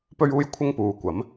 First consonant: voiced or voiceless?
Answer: voiceless